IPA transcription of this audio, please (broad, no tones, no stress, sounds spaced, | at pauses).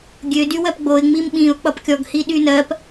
ɡʲ ø d y w ɜ p ɡ͡b o ɪ̯ ŋ͡m i m ɓ ĩ ʊ̯ k͡p ʌ p kʲ ɔ ɡ h i ɗ y n ɜ p